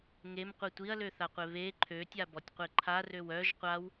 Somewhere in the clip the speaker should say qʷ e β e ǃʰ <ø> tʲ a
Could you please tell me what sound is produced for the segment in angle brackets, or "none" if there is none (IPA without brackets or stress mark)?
ø